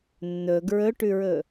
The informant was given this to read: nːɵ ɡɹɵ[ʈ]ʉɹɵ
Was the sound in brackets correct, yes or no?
yes